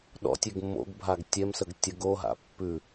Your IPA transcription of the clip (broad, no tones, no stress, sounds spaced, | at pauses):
ɗ ɔ̰ tʲ e ɡ mː o̰ ɡ bʱ a ɡ tʲ ɛ m s ə ɡ tʲ ə ɡ o ɦ a̰ pː ʉ